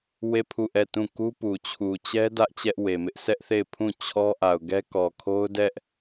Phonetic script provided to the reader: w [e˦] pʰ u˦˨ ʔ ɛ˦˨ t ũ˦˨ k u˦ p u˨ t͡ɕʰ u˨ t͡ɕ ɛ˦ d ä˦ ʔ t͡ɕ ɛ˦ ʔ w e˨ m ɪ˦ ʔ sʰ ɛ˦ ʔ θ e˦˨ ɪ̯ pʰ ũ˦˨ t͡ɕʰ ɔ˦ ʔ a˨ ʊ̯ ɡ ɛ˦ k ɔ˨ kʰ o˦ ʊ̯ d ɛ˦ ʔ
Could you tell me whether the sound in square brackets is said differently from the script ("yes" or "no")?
yes